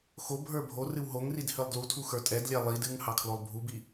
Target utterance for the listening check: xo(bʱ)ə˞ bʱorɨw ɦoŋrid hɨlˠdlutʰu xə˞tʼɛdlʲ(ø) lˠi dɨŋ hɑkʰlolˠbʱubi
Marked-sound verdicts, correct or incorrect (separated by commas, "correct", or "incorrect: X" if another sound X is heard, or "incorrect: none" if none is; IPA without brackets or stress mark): correct, incorrect: ɛ